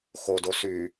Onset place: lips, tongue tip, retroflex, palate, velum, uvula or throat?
velum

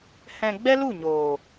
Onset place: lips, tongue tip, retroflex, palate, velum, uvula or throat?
throat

